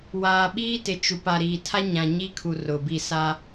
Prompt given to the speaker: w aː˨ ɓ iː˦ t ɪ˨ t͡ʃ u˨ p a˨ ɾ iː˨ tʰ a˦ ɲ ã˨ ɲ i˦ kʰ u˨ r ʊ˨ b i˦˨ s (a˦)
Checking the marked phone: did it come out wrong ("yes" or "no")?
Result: no